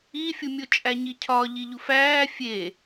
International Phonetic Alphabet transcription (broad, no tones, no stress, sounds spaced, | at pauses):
i fʲ u mʲ o t͡ʃʼ æ ɲ i cʰ ɒ ʎ i ʎ u f æː fʲ e